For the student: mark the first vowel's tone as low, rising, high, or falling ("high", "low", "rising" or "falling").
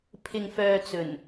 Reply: low